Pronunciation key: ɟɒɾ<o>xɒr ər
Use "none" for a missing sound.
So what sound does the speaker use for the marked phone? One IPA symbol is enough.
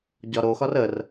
o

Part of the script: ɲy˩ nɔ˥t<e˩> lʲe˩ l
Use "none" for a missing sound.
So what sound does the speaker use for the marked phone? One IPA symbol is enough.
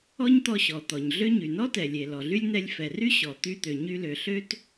ɛ˩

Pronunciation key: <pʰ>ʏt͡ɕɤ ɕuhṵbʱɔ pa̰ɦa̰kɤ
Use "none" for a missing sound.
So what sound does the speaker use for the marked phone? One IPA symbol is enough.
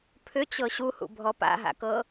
pʰ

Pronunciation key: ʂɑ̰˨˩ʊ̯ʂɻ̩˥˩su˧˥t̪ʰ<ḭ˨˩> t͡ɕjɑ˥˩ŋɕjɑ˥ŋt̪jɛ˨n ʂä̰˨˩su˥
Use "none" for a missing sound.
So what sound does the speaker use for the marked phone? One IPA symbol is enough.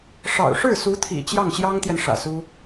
ḭ˨˩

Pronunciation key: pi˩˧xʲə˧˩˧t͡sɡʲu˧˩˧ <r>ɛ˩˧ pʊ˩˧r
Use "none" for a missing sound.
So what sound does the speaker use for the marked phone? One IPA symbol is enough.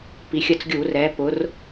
r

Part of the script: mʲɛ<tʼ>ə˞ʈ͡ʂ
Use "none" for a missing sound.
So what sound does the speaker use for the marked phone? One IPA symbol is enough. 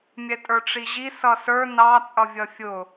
tʼ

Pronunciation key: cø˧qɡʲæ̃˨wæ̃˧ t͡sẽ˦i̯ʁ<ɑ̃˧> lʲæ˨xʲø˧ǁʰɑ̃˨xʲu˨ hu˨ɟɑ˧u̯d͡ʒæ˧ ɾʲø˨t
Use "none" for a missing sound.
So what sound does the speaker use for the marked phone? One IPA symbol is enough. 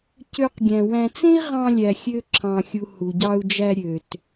ɑ̃˧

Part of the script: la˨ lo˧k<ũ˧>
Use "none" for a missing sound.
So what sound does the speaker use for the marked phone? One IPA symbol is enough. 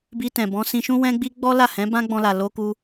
u˧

